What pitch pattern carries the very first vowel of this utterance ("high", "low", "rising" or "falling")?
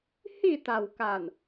falling